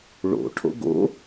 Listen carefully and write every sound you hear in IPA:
ɭo̰ ʈʰo̰ɡo̰

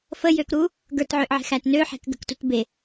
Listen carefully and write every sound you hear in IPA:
fəjøkɾu | ɡə˞tʕøʔʕe̤xæt nøħe̤k ɡə̤ktut be

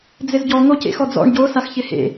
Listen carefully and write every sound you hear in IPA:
d͡zɪzɟɔ ŋocḛx ɔd͡zɔ̰ɳ ɟo saxçɪhḛ

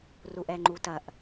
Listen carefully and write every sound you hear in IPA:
ruʔɛŋ͡ǃutɐʔ

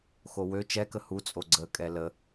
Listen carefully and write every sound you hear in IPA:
xowø t͡ʃɛkə hut͡sʼo ɡ͡ǀə kʼɛlə

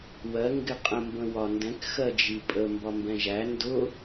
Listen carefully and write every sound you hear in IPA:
wɜ ŋɡɪqʼə̃ mbə̃wɒndɛ̃k xɜd͡ʒipʼə mbɒmbɛ̃ʒæ ndʊ

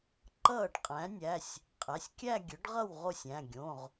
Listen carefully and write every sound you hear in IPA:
ǃʌː˥˩ɖqʼæ̃˩˥nʲæ˩˧˩sʲ | qʼæ˩˧˩sʲkʲæ˥˧ɡʲɵ˩˥ɖʁʌ˥˩w ʁo˥˩sʲ æ̃˩˧˩ɡʲõ˩˧˩ʁ

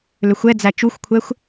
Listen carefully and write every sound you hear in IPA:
løxʷɛd͡zæ t͡ʃuxʷkʷʰɛxʷ

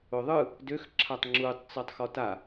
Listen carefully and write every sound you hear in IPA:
ʊðˤɯ | døx ǁʰatˤŋ͡ǁutˤ t͡sɔtˤxɔta

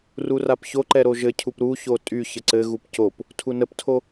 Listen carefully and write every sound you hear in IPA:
rurapçoǃɛ ɾoʒɘcʰup ɾuço tʼy çəǀɘɣup cop | tʰunəptʰo

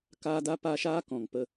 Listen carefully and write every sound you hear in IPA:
kaː˦da˦pa˦ ʃaː˦kɔ̃˨ŋpə˧

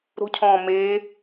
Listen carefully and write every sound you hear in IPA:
ɾo̤cʰɔ̃ː meː

